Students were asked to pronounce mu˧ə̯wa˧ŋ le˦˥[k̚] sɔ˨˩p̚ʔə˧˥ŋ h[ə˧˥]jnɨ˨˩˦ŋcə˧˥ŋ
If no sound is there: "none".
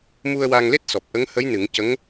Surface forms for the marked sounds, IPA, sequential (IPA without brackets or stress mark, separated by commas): t̚, ə˧˥